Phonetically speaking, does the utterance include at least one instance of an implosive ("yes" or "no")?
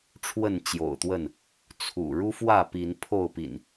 no